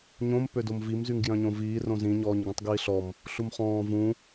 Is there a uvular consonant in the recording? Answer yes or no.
yes